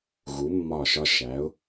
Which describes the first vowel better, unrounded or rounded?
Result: rounded